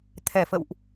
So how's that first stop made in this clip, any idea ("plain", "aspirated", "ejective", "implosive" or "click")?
aspirated